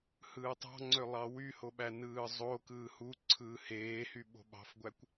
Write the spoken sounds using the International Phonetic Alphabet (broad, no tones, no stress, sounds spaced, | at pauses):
h ɯː tˤ ɑ̤ ŋ͡ǀ ø lˠ ɑ w y h o ɓ æ n ɯː zˤ o k ɯː h u ǀʰ ɯː h eː h y ɓ o̤ ɓ ɑ̤ f ɡʷ æ kʷ